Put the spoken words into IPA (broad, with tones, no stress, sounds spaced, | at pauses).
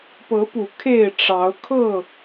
p ɤ˨˦ p u˨˩ kʰ e˥˨ ɪ̯ ʈ͡ʂ ɑ˨˦ ʊ̯ kʰ ɤ˥˨